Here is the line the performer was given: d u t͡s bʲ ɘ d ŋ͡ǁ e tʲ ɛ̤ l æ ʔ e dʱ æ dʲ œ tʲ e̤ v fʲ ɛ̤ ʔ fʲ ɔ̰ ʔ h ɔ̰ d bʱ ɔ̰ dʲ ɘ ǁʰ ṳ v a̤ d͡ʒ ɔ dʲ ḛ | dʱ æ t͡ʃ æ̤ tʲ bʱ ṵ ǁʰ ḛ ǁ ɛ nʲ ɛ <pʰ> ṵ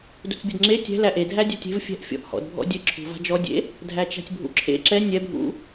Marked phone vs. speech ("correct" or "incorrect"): incorrect